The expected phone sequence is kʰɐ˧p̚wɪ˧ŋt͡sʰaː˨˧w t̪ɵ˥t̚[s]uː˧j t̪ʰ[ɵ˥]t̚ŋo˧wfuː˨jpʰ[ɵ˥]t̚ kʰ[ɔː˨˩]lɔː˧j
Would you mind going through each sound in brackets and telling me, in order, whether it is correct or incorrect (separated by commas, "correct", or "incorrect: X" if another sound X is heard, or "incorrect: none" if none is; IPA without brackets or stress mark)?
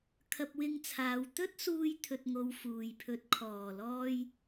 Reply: correct, incorrect: ɵ˧, incorrect: ɵ˧, correct